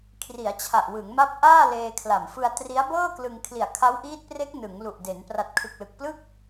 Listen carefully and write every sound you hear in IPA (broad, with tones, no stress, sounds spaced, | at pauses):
kʰ r i˩˦ a̯ t͡ɕʰ a˨˩ ʔ w ɯ˩˦ ŋ m a˦˥ p̚ ʔ aː˥˩ l eː˧ kʰ l a˨˩ m f ɯ˧ a̯ t r i˦˥ a̯ b ɤː˥˩ k l ɯ˧ ŋ kʰ l i˨˩ a̯ kʰ a˦˥ w ʔ iː˦˥ t̚ p r e˦˥ k̚ n ɯ˩˦ ŋ l u˨˩ ʔ d e˩˦ n p r a˨˩ t̚ kʰ ɯ˨˩ k̚ l ɯ˨˩ k̚ p l ɯ˥˩ k̚